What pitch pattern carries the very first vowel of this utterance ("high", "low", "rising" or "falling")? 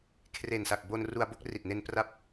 low